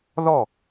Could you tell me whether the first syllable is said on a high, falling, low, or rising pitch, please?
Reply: falling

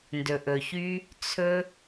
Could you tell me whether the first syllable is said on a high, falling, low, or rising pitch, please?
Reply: low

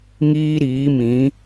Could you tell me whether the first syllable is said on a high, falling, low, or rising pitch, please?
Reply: high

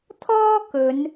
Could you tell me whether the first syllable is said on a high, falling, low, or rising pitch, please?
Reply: high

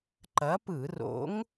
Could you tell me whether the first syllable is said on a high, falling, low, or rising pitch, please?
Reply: rising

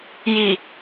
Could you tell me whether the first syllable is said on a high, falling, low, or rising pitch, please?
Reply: low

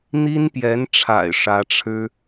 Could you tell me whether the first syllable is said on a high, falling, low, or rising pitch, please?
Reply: high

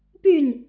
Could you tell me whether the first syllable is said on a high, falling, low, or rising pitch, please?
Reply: falling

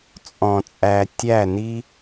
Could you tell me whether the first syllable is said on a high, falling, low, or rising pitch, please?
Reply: low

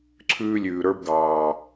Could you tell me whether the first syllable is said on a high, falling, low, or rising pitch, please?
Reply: high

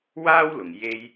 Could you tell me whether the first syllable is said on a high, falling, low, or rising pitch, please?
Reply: high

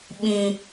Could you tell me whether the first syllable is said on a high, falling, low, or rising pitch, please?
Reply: high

